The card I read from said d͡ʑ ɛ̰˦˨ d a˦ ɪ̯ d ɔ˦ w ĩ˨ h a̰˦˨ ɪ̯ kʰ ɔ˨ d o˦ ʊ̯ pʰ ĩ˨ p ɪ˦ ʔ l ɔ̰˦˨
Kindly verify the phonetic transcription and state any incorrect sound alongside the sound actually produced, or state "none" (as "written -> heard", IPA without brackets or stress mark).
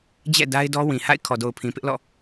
o˦ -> o˨